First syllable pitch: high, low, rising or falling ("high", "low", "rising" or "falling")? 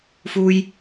high